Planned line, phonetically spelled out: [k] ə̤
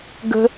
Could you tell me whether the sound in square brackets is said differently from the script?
yes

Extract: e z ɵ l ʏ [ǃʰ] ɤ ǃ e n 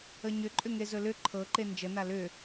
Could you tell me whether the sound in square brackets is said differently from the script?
no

